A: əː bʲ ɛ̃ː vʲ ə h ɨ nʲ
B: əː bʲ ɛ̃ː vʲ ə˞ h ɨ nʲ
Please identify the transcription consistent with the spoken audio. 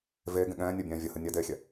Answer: A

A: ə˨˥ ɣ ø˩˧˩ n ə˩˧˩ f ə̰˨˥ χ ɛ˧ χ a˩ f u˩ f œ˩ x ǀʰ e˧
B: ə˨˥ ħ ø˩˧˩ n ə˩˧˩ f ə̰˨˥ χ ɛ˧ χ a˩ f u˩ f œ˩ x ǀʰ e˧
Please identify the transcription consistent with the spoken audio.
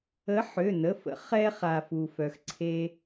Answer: B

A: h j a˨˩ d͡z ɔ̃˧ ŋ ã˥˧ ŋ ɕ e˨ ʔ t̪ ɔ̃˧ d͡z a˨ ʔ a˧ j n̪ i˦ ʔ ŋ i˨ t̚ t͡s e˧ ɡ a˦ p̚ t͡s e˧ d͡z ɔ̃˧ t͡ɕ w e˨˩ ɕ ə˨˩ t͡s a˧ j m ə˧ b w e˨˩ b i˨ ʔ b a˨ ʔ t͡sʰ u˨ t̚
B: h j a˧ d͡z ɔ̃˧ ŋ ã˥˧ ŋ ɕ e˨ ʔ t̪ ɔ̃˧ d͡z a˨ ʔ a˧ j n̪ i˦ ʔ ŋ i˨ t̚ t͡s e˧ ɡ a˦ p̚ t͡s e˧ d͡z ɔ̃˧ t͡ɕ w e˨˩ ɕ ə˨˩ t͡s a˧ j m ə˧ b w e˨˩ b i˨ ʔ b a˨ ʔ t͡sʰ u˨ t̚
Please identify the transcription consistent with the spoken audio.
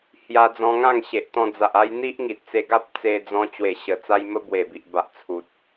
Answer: B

